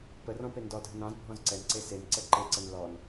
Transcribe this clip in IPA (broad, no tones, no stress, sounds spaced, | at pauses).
p ə r ɔ̃ p e n d ɔ dʱ ə n ɑ̃ z bʱ ɔ̃ z ǀ ɛ n ǀ e s e n ǀ ɛ ǃ e ǀ ə n l ɔ n